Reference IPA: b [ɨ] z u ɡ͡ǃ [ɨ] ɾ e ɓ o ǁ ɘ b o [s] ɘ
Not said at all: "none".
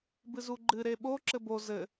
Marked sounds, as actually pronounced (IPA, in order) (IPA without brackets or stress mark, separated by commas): ɨ, ɨ, z